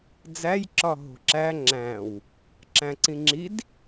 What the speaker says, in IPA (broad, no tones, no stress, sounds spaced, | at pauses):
d͡z æ j ǁ ɒ ɦ o̤ ǁ æ ŋ͡ǁ æ̃ w | ǁ æ̃ ǀ ĩ ŋ͡ǁ i d